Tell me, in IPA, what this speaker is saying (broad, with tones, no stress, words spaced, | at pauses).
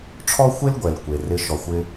ʈ͡ʂʰɔ˥xʷe˥l ɡʷɛ˩lkʷe˩ rɪ˧˥ ʃɔ˩xʷɪ˧